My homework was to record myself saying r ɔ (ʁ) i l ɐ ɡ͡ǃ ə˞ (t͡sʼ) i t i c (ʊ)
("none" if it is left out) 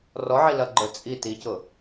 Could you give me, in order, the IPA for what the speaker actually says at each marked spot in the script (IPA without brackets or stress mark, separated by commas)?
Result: ʕ, t͡sʼ, ʊ